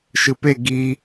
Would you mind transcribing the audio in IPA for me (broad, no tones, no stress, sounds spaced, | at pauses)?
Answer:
ʃ ɯ p e ɡ i